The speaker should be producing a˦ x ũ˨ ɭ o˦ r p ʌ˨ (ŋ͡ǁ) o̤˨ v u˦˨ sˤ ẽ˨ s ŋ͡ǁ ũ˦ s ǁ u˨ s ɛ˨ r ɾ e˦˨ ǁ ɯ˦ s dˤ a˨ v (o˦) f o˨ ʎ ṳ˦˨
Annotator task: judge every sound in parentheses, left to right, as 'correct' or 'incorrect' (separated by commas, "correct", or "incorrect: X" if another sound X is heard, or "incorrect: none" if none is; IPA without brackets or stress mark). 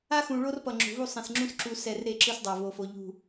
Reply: correct, incorrect: o˨